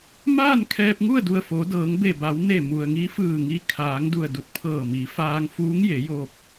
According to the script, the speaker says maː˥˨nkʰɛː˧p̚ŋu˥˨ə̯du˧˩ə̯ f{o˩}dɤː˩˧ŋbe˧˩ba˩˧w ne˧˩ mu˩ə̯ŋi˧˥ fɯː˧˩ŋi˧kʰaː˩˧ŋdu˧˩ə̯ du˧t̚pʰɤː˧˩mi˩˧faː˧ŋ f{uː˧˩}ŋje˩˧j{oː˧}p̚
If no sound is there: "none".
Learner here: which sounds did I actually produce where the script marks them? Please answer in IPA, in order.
o˩˧, uː˧˥, oː˧

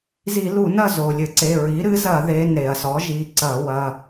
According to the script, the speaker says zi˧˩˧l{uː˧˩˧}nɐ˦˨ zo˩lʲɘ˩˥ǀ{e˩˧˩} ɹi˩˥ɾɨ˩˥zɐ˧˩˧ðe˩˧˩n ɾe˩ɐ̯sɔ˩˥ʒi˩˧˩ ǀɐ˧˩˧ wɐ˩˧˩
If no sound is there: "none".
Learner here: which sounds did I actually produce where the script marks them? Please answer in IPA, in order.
u˧˩˧, e˩˧˩

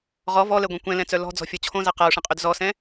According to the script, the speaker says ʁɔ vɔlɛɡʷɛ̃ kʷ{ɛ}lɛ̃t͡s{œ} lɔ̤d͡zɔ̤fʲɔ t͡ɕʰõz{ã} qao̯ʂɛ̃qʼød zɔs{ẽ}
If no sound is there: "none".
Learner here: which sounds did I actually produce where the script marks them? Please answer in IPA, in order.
ɛ̃, œ, a, ɛ̃

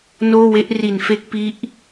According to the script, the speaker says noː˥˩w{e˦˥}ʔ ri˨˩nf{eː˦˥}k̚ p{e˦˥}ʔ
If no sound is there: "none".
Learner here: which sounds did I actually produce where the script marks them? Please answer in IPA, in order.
e˦˥, e˦˥, i˦˥

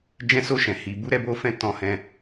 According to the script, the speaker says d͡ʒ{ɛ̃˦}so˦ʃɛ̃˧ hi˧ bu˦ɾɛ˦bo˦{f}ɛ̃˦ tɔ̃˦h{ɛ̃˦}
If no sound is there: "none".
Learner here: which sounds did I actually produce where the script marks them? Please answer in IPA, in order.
ɛ̃˦, f, ɛ̃˦

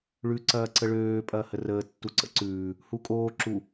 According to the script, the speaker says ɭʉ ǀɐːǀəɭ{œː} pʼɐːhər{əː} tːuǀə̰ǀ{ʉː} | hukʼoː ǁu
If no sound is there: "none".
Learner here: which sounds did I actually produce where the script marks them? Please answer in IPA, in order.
øː, əː, ʉː

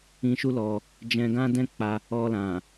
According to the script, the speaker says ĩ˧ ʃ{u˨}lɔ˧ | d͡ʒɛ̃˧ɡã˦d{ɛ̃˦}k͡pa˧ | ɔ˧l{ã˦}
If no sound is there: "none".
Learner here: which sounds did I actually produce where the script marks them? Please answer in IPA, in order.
u˦, ɛ̃˦, ã˨

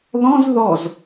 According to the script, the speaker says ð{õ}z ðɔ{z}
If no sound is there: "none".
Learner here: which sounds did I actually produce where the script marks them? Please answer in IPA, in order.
ɔ̃, z

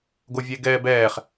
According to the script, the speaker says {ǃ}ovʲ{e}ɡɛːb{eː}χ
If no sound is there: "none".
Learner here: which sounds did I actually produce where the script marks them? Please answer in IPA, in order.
ɡ, e, ɛː

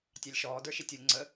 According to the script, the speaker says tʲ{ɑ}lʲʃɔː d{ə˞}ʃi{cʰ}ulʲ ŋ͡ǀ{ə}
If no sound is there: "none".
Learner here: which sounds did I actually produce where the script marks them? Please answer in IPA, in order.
ɑ, ə˞, tʲ, ə

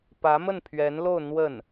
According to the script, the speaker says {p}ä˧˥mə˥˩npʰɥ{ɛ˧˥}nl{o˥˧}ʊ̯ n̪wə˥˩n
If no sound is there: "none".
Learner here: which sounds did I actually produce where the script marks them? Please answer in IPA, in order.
p, ɛ˧˥, o˥˧

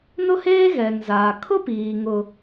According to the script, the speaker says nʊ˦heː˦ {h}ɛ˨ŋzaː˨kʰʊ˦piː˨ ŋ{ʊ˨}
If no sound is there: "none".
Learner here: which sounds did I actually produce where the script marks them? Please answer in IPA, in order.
ɣ, ʊ˨

